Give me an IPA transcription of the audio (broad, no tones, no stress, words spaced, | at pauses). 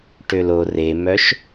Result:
ʈølo remœʃ